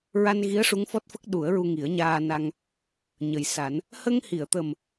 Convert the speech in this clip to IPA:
ɹ a˧ n ɣ i˧˥ ə̯ ʂ u˧˥ ŋ f ɔ˦˥ t̚ f ə˦˥ k̚ ɗ u˨˩˦ ə̯ ɹ u˧ ŋ i˨˩˦ ə̯ ɲ aː˧ n a˧ ŋ | ɲ ə˨˩ j s a˨˩˦ n | h ə˧ ŋ h i˨˩˨ ə̯ t̪ ə˨˩ m

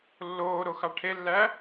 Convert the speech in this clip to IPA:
lː oː ɾ o x ɑ ʈʰ e lː æ

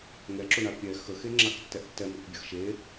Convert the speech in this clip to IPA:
ŋ ɛ ǁ ʊ ɳ a pʲ ɛ x ə x e ŋ͡ǁ a k tː ɛ ʔ tː ɛ m ə k bʲ ə x ʃ e

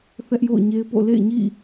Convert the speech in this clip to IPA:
θ ɛ˦ ʔ j o̰˦˨ ʊ̯ ɲ e˦ ɪ̯ p o̰˦˨ l ḛ˦˨ ɪ̯ ɲ ḭ˦˨

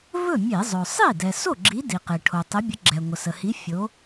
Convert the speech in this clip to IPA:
v ɵ˥˩ mʲ e˧˩˧ zˤ ɵ˩ sˤ i˥˩ d ɛ˩ s o˥˩ ɡ͡ǁ i˨˦ d i˩ q e˩ ʈʰ o˩ tˤ ə˨˦ bʲ ə˨˦ ɡ͡ǁ ɛ˩ ŋʷ ə˩ s ə˩ h i˨˦ fʲ o˨˦

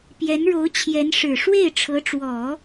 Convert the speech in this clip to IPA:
p j ɛ˧˥ n ɻ o˧˥ ʊ̯ t͡ɕʰ j ɛ˧˥ n ʂ ɻ̩˨˩ ʂ w e˥˩ ɪ̯ ʈ͡ʂʰ ɤ˧˥ ʈ͡ʂ w ɔ˨˩˦

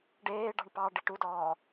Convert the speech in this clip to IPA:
ɖ eː ɖ ɑ̤ ɳ p ɑ ɖ i ʈ u d ɔː

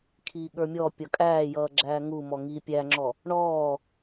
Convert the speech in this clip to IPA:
kʰ iː ɠ ə˞ mʲ ɔ pʲ ʌ kʼ æː j ʌː ɡ͡ǁ æː ŋ u m ɔ ŋ iː pʲ æ ŋ͡ǁ ɔ | ɳ ɔː

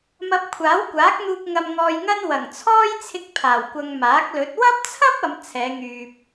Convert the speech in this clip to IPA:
m ɐ˧ p̚ kʷʰ aː˨˥ w kʷ aː˨˥ k̚ n̪ uː˧ k̚ ŋ ɐ˧ m ŋ ɔː˧ j ŋ ɐ˥ n w ɐ˨˩ ŋ t͡sʰ ɔː˥ j t͡sʰ ɪ˧ k̚ pʰ aː˨˩ w kʷ ɐ˨ ŋ m aː˨˥ k̚ l ɵ˨˥ t̚ w ɐ˥ p̚ t͡sʰ ɐ˥ p̚ ɐ˨˧ m t͡sʰ ɛː˨˧ ŋ yː˨ p̚

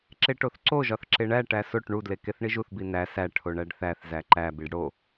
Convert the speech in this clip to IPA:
ǁ e ʈ o θ ǀ o ʒ ɒ θ ǁ e ɳ æ ʈ æ s o ʈ ɳ u d l e k e θ ɳ i ʒ u θ b i n æ s æ ʈʰ o ɳ æ ɖ θ æ θ z æ ǃ æ b i ɖ ɽ o

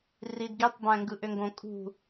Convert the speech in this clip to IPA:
r i d ɡ i tˤ b æ̃ ŋ ɡ ɯ ʔ ø ŋ ɡ õ kʼ ṳ

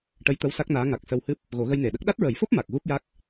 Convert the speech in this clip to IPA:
ʈ ə˧˥ j t̪ ə˧˥ w s a˦˥ k̚ n aː˧˥ ŋ a˨˩ k̚ s ə˧ w h ɨ˦˥ p̚ | ɣ o˨˩˦ ɣ ə˧ j n e˨˩ ɗ ə˦˥ k̚ ɗ a˦˥ t̚ ɹ ə˨˩˦ j f o˦˥ p̚ m a˨˩ k̚ ɣ u˦˥ p̚ j a˦˥ k̚

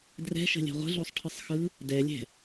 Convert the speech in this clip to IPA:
d r ɛ̤ ʃ ə̤ lʲ ɛ̤ ʁʷ ə̤ ɮ o sˤ ʈʰ ɯ sˤ x ɯ | d ɛ lʲ ɛ̤

